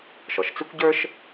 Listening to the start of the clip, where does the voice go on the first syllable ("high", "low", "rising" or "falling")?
low